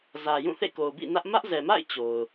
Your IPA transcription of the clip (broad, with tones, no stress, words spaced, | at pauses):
zä˨jũ˦˨ θḛ˦˨ko˨ʊ̯bḭ˦˨nä˦ʔ mä˦ʔzɛ˨ma̰˦˨ɪ̯ t͡ɕo˨ʊ̯